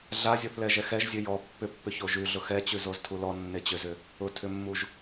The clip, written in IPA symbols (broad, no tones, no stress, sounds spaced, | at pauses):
ɮ a zʲ o θ l ɛ ʒ ɛ x ɛ ʒ zʲ ø j ɔ pː ʏ pː ʏ ç o ʒ ʉ ɮ ʊ x ɛ t͡ɕ ʉ z o z tʰ u l ɔ nː e t͡ɕ ʏ z ʏ | ʊ tʰ ʏ mː u ʒ